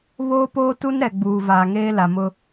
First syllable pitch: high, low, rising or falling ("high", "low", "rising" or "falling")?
high